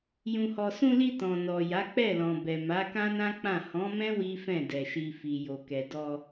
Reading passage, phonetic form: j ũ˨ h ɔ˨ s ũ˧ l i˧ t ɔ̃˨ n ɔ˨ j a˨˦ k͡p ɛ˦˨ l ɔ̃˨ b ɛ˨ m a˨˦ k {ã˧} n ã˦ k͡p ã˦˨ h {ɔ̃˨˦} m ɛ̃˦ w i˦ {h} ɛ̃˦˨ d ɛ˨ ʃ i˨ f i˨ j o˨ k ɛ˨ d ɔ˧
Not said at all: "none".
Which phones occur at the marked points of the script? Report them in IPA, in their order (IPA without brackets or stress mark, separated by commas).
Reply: ã˦, ɔ̃˨˦, f